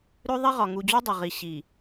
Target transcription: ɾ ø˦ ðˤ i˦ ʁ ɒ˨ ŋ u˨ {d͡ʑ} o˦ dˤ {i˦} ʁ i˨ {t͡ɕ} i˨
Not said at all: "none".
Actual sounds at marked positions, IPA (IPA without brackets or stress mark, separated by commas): d͡ʑ, i˨, ɕ